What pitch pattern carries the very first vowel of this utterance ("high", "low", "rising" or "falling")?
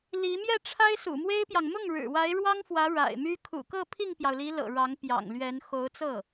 rising